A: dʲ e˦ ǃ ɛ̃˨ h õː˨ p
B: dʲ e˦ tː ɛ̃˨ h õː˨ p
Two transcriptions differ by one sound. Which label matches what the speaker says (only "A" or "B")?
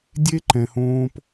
A